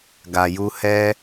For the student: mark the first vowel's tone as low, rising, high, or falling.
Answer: low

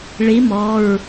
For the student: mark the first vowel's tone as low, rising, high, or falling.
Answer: rising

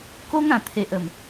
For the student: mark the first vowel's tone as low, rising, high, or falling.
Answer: high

